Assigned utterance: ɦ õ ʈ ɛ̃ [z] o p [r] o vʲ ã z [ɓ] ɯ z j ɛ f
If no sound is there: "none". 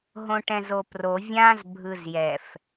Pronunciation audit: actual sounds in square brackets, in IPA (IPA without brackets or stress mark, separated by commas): z, r, bʱ